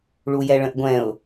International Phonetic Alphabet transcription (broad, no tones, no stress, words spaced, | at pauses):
ɭujɛɭə̃ʔɡʷɛ̃ʊ̯